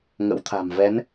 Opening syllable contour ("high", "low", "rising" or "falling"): rising